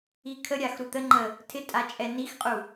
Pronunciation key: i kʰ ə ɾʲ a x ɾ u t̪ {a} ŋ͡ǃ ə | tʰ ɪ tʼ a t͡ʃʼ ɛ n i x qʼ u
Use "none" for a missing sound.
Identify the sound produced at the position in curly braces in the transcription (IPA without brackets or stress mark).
ə